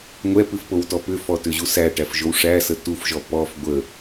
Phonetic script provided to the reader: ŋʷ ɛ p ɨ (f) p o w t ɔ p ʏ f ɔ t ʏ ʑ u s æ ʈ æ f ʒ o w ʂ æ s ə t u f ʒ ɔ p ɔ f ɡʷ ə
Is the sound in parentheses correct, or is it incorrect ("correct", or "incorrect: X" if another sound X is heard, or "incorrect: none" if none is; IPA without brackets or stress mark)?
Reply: correct